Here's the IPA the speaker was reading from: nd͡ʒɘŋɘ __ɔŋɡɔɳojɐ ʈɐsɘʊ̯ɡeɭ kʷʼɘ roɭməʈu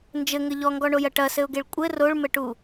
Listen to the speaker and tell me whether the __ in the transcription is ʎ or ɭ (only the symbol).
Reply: ʎ